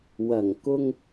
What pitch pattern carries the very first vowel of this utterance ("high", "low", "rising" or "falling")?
low